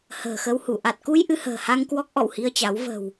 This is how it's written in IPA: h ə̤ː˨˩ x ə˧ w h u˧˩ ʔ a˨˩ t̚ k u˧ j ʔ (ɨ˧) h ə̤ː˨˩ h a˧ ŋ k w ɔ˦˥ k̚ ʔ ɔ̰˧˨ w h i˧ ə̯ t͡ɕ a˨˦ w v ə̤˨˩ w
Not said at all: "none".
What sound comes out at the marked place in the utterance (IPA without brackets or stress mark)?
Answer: ɨ˧